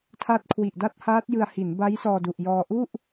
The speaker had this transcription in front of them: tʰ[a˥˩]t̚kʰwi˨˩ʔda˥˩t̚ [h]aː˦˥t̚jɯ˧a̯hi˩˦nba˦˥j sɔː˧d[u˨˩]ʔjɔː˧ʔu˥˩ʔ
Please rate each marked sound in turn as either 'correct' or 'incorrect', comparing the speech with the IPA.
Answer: incorrect, correct, correct

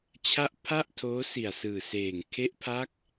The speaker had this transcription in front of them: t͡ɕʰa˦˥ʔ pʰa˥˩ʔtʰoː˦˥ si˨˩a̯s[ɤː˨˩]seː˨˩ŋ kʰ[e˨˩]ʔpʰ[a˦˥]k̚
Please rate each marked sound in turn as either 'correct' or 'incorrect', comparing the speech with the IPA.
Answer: incorrect, incorrect, correct

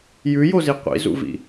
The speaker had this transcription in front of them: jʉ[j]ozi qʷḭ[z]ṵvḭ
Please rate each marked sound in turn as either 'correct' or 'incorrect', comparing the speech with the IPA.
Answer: correct, correct

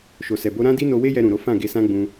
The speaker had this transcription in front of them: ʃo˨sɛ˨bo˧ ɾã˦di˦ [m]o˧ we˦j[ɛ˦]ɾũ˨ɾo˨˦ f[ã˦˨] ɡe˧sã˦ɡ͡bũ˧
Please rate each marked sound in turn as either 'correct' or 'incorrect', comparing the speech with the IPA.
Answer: incorrect, incorrect, correct

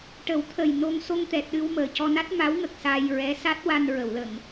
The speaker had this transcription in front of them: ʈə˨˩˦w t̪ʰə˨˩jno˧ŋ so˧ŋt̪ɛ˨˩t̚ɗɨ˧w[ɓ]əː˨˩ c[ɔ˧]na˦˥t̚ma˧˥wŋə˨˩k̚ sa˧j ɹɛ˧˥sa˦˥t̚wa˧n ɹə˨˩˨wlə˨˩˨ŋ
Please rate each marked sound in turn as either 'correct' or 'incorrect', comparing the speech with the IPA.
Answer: incorrect, correct

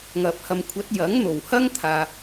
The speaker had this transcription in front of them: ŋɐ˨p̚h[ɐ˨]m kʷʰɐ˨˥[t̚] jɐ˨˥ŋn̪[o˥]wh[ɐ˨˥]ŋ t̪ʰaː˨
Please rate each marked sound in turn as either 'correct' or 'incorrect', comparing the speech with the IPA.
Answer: correct, correct, incorrect, incorrect

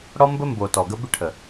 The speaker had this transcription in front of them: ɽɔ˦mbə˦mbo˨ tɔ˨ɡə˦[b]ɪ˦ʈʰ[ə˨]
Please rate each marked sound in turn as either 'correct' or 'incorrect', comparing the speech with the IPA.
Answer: correct, correct

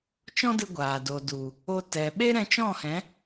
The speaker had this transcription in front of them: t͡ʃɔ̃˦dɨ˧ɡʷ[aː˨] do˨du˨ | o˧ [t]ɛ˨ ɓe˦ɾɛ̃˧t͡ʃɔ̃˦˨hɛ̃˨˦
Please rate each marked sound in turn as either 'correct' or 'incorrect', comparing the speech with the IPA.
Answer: correct, correct

